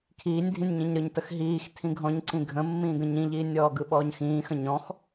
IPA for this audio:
kʰiːnʲdʱĩnʲ ɲĩɲɾɯɲtəx ɦiːx tʰĩɡʱɔ̃ɲǀĩ ɡʱə̃mːĩːɡə̃ ɲĩʎiːnʲɔːɡɯ ɓɔːɲxĩːxə̃ ɲɔ̃x

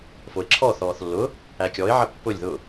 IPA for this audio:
foɪ̯ǁʰɔ θɔːθlːʊː | ækʲɔɪ̯ʕɐ pːʊlʲ ðʊː

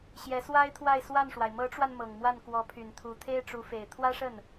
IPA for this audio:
ɕjɛ˧˥ swa˥ɪ̯t̪ʰwa˥˧ɪ̯ swa˥˩nʂwa˩ɪ̯ mɤ˧˥ʈ͡ʂwa˧n mɤ˨˩ŋmwa˥˩n kwɔ˧˥pʰy˨˩n t̪ʰu˧˥t̪ʰe˥ɪ̯ʈ͡ʂu˧˥fe˨˩ɪ̯ t̪ʰwä˥ʂə˥˩n

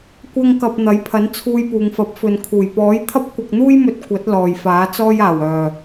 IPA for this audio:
kʷɐ˥ŋ kɐ˧p̚ n̪ɐ˨˥jpʰɐ˨˥n t͡sʰuː˧jpuː˨ŋ fɐ˨˥p̚fɵ˨n kʰuː˨˩jpɔː˨˥j t̪ʰɐ˥p̚kʷɐ˧k̚n̪uː˥jmɵ˧t̚ kʷɐ˨˥t̚ lɔː˨jfaː˨˥t͡sɔː˥jaː˨˩w œː˨˩

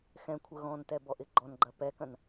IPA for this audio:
xɛ̃kʷʰə ɣɔ̃ntɛbɔʔɪ ɡ͡ǃɔnɡ͡ǃɐ pɛkɐ̃n

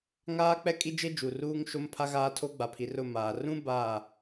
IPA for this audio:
ŋaː˦k͡pɛ˦ kʼi˦d͡ʒe˦ d͡ʒu˨ruː˦ŋ ʃo˦mpʰa˦ɣaː˦tʰo˦ ɡ͡ba˨pʰi˨r ʊ˦˨maː˨ rũ˦ ba˦˨

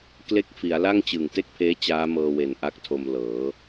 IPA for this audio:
kle˥˩k̚fi˩˦a̯ la˥˩ŋt͡ɕɯ˨˩ŋte˥˩k̚pʰeː˦˥ t͡ɕaː˦˥mɤː˧we˨˩n ʔa˦˥k̚tʰo˧mlɤː˩˦

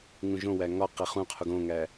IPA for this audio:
ŋũʒõwæ ŋɒ qeχũqʰuɡ õŋæ

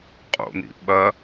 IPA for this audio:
qʼo̰n̪ḭ ɓɐ

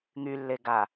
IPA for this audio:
ŋylːeɡa

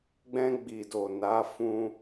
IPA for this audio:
ɡ͡bɛ̃˧ɡ͡bi˨do˨ na˨˦fũ˧

